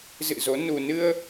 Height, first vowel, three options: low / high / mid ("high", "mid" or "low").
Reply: high